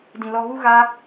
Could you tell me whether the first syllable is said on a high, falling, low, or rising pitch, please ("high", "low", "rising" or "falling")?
low